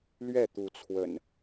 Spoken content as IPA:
l ɥ ɛ˥˨ t̪ u˨˦ t͡sʰ w ə̰˨˩ n

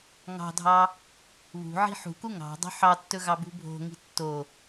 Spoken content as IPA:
ŋ ɑ̤ dʱ ɑ | β ṳ ʕ i̤ ħ ṳ k u ŋ ɑ̤ dˤ ṳ ħ ɑ tː ɵ ɣ ɑ b ṳ bʱ o̤ ŋ i̤ tː o

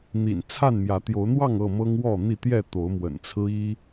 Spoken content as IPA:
n̪ ḭ˨˩ n t͡sʰ a˥˨ n m j ä˨˦ t̪ j o˨˦ ʊ̯ n̪ w ɑ˥˨ ŋ ɤ˥˨ m ɤ˦ ŋ w ɔ˥˨ n̪ i˥˨ t̪ j ɛ˥˨ t̪ o˨˦ ʊ̯ m w ə̰˨˩ n t͡sʰ ɹ̩˦ i˦

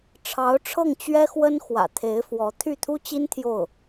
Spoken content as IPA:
ʈ͡ʂʰ ɑ˧˥ ʊ̯ ʈ͡ʂʰ ɤ˥˩ ŋ t͡ɕ ɥ ɛ˥ x w ə˥ n x w ä̰˨˩ t̪ʰ e˧˥ ɪ̯ f w ɔ˧˥ t̪ʰ y˥˩ t̪ʰ u˥ t͡ɕ i˥ n t̪ʰ j o˥˩ ʊ̯

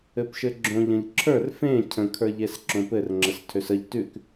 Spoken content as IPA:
ɘ p ʃ ɘ ɡ͡ǁ õ ʎ ə̃ ʎ ǁʰ ə˞ r f ẽ cʰ ə̃ kʰ ə˞ ʎ e s ǁ õ p ɘ r ŋ͡ǁ ə s tʰ ø s ə ʎ t ʉ k

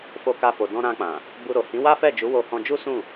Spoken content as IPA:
f o˧ k a˧ f o˨ d ɔ̃˧ ɾ ã˧ k͡p ã˨ | b u˧ ɾ o˨ h ĩ˨˦ w a˦ f ɛ˦˨ d͡ʒ u˨˦ w o˧ h ɔ̃˧ d͡ʒ u˦ s ũ˦˨

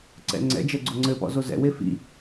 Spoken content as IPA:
ǀ ɛ̰ ŋ͡ǀ ɛ̰ d͡ʒ ɛ ɡ͡ǀ o ŋ͡ǀ ɘ p ɔ̰ z o z ɛ̰ w e f ḭ

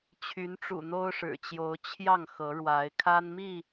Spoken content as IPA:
t͡ɕʰ y˨˦ n ʈ͡ʂ ṵ˨˩ n̪ o˦ ʊ̯ ʂ ɻ̩˨˩ t͡ɕ j o˨˦ ʊ̯ t͡ɕʰ j ɑ˥˨ ŋ x ɤ˨˦ ɻ w a˨˦ ɪ̯ kʰ a˦ n m i˥˨

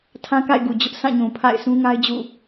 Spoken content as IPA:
tʰ ã˦ k a̰˦˨ ɪ̯ ɡ u˨ d͡ʑ ʊ˦ ʔ s ã˦˨ ɲ ũ˨ pʰ a̰˦˨ ɪ̯ sʰ ũ˦ ŋ a˦ ɪ̯ d͡ʑ ṵ˦˨

